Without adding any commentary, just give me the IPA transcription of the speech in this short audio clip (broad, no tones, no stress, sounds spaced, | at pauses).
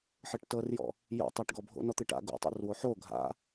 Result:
ħ ɤ ʈ t ɤ r j ɔ̰ | j o̰ tˤ ʏ ʈ ɡ ɔ bʱ o̰ n ɔ t̪ ɨ ʈ a̰ ɡ o̰ tˤ o̰ r w o ħ o ɡʱ a̰